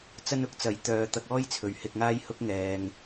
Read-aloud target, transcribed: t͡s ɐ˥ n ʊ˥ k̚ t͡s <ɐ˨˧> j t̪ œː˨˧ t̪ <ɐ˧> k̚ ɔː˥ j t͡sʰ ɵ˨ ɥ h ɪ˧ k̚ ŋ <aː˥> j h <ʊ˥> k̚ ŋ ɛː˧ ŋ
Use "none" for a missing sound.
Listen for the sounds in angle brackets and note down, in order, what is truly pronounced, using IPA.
ɐ˨˥, ɐ˧, aː˥, ʊ˥

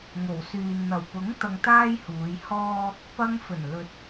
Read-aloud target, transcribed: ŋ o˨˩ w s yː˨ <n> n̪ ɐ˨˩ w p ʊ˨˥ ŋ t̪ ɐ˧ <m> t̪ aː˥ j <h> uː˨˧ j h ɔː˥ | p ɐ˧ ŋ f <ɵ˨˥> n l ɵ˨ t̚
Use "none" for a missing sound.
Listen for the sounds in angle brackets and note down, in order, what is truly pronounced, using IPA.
n, ŋ, h, ɵ˨˩

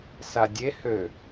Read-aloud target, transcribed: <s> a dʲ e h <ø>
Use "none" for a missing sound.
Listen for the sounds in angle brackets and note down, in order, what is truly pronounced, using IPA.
s, ø

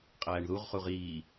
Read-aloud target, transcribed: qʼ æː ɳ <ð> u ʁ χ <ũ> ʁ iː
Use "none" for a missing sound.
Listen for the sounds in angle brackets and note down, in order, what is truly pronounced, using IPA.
ð, u

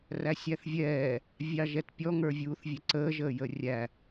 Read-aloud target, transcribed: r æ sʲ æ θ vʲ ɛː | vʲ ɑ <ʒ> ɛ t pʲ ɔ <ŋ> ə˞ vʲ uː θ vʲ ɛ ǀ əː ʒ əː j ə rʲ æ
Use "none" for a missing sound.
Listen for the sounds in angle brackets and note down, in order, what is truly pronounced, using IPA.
ʒ, ŋ

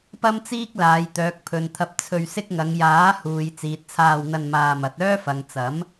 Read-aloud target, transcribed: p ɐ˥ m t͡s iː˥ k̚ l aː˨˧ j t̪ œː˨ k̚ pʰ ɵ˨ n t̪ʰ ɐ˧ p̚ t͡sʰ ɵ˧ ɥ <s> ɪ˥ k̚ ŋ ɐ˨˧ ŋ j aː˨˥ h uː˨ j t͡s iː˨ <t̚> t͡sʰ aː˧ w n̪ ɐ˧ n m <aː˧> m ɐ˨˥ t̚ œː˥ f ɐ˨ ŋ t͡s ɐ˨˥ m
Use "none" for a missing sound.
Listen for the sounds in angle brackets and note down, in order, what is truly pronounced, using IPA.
s, t̚, aː˧

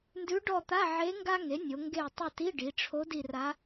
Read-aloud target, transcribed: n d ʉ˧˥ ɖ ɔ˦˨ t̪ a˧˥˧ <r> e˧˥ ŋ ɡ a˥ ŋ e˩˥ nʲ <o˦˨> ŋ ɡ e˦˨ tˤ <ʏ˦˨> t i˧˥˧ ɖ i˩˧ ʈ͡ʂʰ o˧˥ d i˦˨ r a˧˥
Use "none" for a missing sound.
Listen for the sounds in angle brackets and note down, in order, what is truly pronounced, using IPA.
ʕ, o˩˧, ʏ˦˨

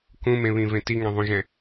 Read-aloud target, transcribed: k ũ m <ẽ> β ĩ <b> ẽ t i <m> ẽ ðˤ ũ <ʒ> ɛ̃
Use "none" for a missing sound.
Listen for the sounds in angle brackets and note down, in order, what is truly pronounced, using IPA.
ẽ, v, ŋ, ʒ

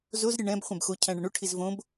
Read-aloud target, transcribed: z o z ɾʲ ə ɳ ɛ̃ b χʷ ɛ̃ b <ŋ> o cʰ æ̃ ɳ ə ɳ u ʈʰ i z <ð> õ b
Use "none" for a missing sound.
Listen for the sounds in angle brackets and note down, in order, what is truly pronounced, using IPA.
x, v

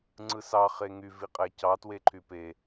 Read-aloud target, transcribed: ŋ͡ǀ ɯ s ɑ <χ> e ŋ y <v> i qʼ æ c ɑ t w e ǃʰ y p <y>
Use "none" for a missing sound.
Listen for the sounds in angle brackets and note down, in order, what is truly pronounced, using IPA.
χ, v, e

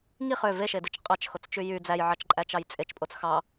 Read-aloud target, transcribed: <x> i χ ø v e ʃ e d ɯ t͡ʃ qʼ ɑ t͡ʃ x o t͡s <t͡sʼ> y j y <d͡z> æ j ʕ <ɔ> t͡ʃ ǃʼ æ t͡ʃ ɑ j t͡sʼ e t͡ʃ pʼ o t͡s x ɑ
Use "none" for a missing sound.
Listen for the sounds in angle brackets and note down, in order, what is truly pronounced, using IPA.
ŋ, t͡ʃ, d͡z, ɑ

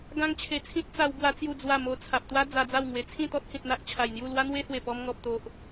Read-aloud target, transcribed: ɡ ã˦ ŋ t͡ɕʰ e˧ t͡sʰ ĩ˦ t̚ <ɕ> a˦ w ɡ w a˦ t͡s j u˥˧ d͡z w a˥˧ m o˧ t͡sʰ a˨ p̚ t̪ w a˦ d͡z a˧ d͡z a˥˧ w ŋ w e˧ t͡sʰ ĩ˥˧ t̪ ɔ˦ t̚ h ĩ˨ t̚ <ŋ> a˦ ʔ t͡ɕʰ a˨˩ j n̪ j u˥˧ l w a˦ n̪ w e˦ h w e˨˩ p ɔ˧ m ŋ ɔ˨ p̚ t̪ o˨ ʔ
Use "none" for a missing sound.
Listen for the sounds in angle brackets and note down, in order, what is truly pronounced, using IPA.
t͡s, n̪

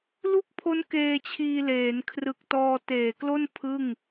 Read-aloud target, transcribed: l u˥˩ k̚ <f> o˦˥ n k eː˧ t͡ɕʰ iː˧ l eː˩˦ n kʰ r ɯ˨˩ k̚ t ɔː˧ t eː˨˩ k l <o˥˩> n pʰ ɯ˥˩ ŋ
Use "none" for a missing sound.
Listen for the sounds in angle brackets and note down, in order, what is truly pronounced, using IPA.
pʰ, o˥˩

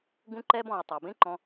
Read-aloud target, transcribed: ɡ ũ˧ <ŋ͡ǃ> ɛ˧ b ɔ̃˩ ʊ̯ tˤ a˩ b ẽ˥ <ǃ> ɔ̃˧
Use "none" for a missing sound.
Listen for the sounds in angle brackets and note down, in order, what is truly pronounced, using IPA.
ǃ, ǃ

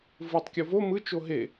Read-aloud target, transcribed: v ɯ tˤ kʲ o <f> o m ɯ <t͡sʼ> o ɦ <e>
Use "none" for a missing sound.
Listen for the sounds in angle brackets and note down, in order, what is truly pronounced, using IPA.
v, t͡ʃ, e

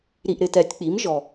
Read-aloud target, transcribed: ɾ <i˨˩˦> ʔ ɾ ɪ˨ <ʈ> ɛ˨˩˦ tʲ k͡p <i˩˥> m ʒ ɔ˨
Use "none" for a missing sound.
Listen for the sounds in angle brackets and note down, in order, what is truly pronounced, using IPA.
i˨, t, i˩˥

